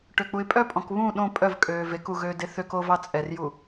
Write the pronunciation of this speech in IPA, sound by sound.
ʈ ø k͡p u ɪ̯ pʼ œ pʼ ɔ̃ k β ũ ɗ õ pʼ œ v kʼ øː v e k u ɣ øː d e θ ø k o v ɑ t͡sʼ ɛ r j u

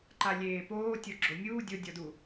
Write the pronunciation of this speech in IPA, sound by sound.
ǃ a lʲ eː p oː tʲ o ɡ͡ǁ o mʲ uː dʲ o dʲ ɔ d u

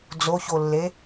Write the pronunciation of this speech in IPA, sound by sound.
d͡z o ç o lː e

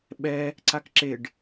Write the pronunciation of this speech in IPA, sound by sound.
ɓ ɛ | ǀ a k ǁ e ɖ

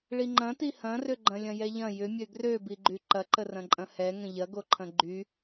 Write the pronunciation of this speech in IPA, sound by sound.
ɭ i ŋ͡ǃ ɐ̃ t i h ɐ̃ r ʏ ɡ͡ǃ ɐ̃ lʲ ɐ̃ j ɛ ʎ ɐ̃ j ʏ mʲ ø ɡ r ø b i ɡ͡ǃ y ǃ ɐ ǃ ə r ɐ̃ ǃʼ ɐ̃ h ɛ ŋ ə̃ ʎ ɐ ɡ o ǃʰ ɐ̃ ɡ͡ǃ y

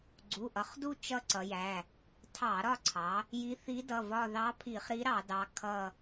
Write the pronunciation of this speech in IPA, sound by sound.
ɡ͡ǀ u˩˧˩ ʔ ʌ˩˧ χ d u˦˨ t͡ʃ ʌ˦˨ ǀ ʌ˩˧ j æ˩˧˩ | tʰ ɑ˧˩˧ ɾ ɒ˦˨ ǀʰ ɑ˩˧ | j i˧˥ θ i˧˥ d ʌ˩˧˩ v ɒ˦˨ ð ɑ˧˥ pʰ i˧˩˧ χ ɾ i˧˥ ɾ ɑ˧˩˧ d ɑ˩˧˩ kʰ ʌ˦˨

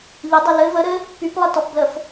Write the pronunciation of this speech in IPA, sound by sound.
ʎ ə dˤ ɘ l ɘ v ə ɾ ɘ | p y p lˠ ɘ t ɔ p b l ə f

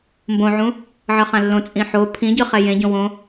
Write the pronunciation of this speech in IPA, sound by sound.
m b õ ʕ ũ | ʕ ʌ χ ã lː õ t͡sʼ ĩ ħ o pʰ ĩ ɟ ɯ χ ɛ j ẽ ɟ õ w õ

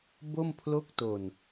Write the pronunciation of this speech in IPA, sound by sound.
b o˥˩ m pʰ l o˥˩ k̚ t o˧ n

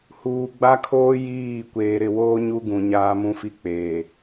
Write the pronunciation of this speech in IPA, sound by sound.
h uː˨ ɡ͡b a˦ kʰ oː˦ j iː˦˨ kʷ eː˨ ɾ ɪ˦˨ w oː˦ ɲ u˦ ɡ ũ˨ ɲ aː˦ m ũ˦ f i˦ k͡p eː˨

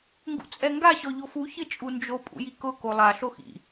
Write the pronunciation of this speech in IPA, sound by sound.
ŋ ɡ ṵ t͡sʼ ɛ ŋ ɡ a ɕ ɔ ʎ o f u ç ɪ t͡ʃʼ u n d͡ʒ o pʼ ṵ j i k ʊ k o lˠ a ɬ o x ḭ

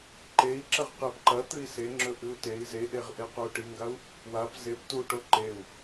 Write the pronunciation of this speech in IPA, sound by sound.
ǃ e i̯ ǁ ɐ ʁ q e p ǃ ɐ t̪ ɨ i̯ s e ŋ͡ǁ ɵ ʔ ɨ u̯ t e i̯ z e ʔ e ʁ ʔ e q o u̯ ʈ i ŋ ɡ a u̯ | w a p z e p t u ʈ o ǃ e u̯

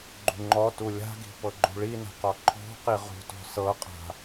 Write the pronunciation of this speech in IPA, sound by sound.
ɡ͡ǃ ṳ ŋ͡ǃ ɔ t u lʲ a̤ ɡ i̤ p ɤ ɡ͡ǃ ṳ ɭ i n a̤ q ɔ ǃʰ ɔ̤ q i ʁ ṳ t ɔ̤ s ɤ qʼ a̤

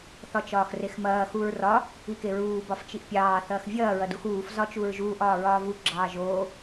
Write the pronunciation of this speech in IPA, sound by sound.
θ ɒ t͡ʃ ɒː x r e x m ɐː x u ɹ r ɒ | i k e ɹ uː b ɒ f t͡ʃ i ʔ pʲ ɑː θ ɐː x vʲ ɐː ɹ ɐ d u x uː f z ɒ t͡ʃ u ɹ ʒ uː ʔ ɒː ɹ ɒː v u ɡ͡ǁ ɑː ʒ oː

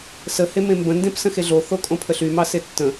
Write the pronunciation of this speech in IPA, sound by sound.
s ə h e m ẽ m b ə̃ n d ẽ p s ə̃ x e ɮ o θ o kʼ õ pʰ ə ɬ y m ɑ s e tː ə̃

